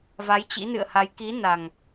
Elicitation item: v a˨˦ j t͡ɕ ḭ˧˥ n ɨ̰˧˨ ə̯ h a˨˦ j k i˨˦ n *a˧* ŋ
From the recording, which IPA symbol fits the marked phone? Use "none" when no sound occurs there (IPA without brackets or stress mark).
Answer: a˨˩